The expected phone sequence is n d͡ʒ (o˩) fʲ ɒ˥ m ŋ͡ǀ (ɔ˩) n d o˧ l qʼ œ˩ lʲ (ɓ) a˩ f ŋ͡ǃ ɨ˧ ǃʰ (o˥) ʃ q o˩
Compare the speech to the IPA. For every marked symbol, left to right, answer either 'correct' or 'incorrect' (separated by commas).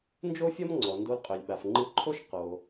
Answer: incorrect, correct, correct, correct